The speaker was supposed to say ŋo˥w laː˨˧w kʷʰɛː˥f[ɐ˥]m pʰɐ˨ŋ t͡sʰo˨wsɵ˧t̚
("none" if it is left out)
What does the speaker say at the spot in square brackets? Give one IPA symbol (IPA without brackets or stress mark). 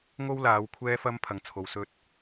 ɐ˥